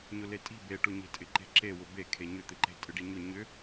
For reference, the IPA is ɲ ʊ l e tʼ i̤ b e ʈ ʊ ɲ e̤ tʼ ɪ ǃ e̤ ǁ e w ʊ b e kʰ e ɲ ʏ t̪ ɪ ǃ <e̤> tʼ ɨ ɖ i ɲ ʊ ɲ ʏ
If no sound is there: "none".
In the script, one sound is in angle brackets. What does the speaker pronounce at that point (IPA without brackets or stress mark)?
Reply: e̤